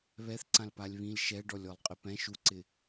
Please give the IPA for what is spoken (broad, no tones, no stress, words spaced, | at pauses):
βɛθǀãl palʲβĩl ʃɛɖɔlʲ ɔlˠqʼɪpɛ̃ ʃuǀɪ